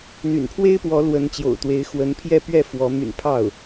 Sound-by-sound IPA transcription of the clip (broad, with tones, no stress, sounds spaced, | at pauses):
n̪ y̰˨˩ n pʰ w e˥ ɪ̯ p w ɔ˧˥ l w ə˧˥ n t͡ɕ j o̰˨˩ ʊ̯ t̪ w e˧˥ ɪ̯ x w ə˧˥ n pʰ j ɛ˥˧ p ɥ ɛ˥˩ f w ɔ˧˥ m y̰˨˩ n pʰ ɑ˥˩ ʊ̯